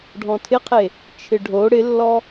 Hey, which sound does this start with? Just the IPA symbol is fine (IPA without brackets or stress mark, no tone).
ɖʱ